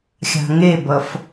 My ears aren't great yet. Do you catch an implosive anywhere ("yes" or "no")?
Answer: no